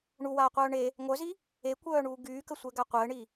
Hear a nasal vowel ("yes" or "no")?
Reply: no